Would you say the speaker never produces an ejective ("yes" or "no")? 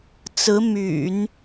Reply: yes